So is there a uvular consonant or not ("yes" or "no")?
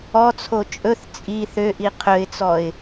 yes